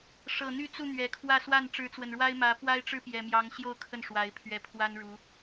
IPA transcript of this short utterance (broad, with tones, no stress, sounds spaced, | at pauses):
ʂ ɤ˨˩ n̪ y˥˧ t͡s u˥˩ n̪ ɥ ɛ˨˩ kʰ w ä˥˧ s w a˥˩ n ʈ͡ʂ ɻ̩˧˥ t͡s w ə˨˩ n ɻ w a˥ ɪ̯ m ä˧˥ p w a˥ ɪ̯ ʈ͡ʂ ɻ̩˥ p j ɛ˨˩ m j ɑ˧˥ ŋ ɕ j o˥˧ ʊ̯ kʰ ə˥˩ n ʂ w a˧˥ ɪ̯ pʰ ɥ ɛ˧˥ pʰ w a˥ n ɻ u˧˥